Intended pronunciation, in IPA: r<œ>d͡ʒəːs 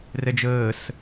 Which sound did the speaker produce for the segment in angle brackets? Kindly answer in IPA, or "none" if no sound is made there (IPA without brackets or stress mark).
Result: ɛ